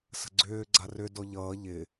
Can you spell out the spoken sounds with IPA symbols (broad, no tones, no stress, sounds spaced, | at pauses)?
s ə̤ ɡ͡ǀ ʏː ɡ͡ǀ a r ʏ d ɔ ʎ ʌː ʎ ɪ